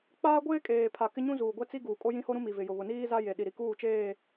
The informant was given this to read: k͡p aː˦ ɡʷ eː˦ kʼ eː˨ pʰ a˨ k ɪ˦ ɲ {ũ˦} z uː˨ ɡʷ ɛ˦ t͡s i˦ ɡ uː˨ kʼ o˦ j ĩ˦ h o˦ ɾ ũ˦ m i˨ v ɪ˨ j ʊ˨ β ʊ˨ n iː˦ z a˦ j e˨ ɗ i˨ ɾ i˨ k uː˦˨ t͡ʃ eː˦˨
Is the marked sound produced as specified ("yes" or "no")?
yes